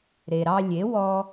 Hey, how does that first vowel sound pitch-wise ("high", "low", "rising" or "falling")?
low